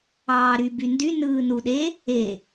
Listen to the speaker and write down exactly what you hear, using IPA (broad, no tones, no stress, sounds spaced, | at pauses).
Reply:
ɑː ɾ y b y n d y n ɯː n u ɗ e | e